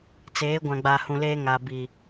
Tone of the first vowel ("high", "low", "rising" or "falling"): rising